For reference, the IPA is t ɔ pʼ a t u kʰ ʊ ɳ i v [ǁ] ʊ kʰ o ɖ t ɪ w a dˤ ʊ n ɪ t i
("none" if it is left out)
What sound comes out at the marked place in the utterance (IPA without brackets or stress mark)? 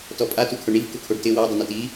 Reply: k